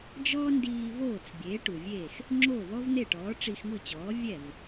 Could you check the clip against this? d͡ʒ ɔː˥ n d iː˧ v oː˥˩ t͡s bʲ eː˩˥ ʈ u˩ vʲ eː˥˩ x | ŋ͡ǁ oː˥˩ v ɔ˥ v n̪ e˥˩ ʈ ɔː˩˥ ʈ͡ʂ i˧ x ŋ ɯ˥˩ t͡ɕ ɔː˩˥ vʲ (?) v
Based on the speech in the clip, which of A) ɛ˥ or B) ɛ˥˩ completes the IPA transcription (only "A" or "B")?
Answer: B